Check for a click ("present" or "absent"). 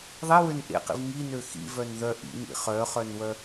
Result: absent